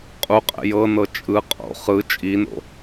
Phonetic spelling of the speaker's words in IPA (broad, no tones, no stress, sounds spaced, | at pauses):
qʼ u qʼ ɛ̰ j ɤ n ɤ t͡ʃʼ ɯ qʼ o̰ χ ɯ t͡ʃʼ i n o̰